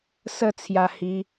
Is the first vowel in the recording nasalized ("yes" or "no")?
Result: no